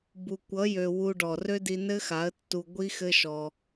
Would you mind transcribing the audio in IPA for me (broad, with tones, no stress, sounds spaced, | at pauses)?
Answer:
b u˨ kʷ ʌ˨˦ j ø˨ w u˧ ɖ ɔ˨ r ø˦ d i˧ n ɘ˦ x a˨˦ ə̯ tː u˧ ɡʷ i˦ x ɘ˦ ʃ ɔ˧